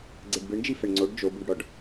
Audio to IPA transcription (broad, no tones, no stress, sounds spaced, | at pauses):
ɡ͡ǀ e ɖ b ɯ ɳ d͡ʒ i f ɛ ɳ ŋ͡ǀ o ɖ d͡ʒ o b u ɖ ɽ ɔ ɖ